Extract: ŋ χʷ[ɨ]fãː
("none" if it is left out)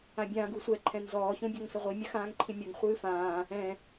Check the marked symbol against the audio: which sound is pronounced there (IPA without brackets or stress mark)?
ɨː